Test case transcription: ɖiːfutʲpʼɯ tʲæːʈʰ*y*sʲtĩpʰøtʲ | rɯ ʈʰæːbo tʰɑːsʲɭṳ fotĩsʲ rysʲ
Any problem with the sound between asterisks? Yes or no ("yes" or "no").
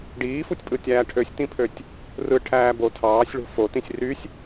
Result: yes